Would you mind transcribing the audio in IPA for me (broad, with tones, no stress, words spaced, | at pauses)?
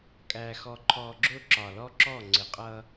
kʼæː˨xɔ˨ǃʰɔː˨ɡ͡ǁʊː˦ ǁɒ˨lɔ˦ǁɔ˦˨ ŋ͡ǀɪ˨qʼʌ˦